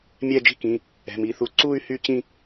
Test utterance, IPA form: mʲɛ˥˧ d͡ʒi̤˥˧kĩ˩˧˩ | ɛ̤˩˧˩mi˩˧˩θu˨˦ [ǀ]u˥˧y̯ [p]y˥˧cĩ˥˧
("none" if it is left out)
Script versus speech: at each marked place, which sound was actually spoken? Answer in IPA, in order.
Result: ǀ, h

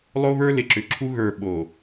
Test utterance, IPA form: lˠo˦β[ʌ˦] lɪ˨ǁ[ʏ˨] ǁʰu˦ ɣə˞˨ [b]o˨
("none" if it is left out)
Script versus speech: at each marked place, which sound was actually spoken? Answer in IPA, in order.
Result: ə˞˦, ʏ˨, ɓ

